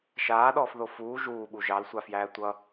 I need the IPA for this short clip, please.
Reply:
ʃaːɗɔːfðo fuː ʒuːɓu ʒɑlsʷafjæː tʷʌ

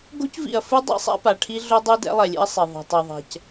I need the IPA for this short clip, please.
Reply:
ɡo̤˦cvḭ˨ɐ̯fɯ˦ dˤḭ˦sˤa̰˦ pa˨ʈʰi˦ ɮo˦dˤɯ˦ dɛ̰˦lˠɛ˨lʲḛ˦ɐ̯sˤe˨ ðˤa̤˨tˤe˨ðˤɛ̤˨c

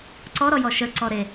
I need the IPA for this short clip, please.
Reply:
ǀɔɾɔjɔ ʃəǀɔ ɾe

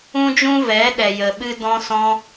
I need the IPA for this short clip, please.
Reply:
ũ˧d͡ʒũ˧ vɛ˨˦ ɗɛ˨jə˨ɓɨ˧ dɔ̃˧sɔ̃˧

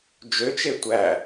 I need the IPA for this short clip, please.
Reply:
d͡ʒøt͡ʃe tʷæ

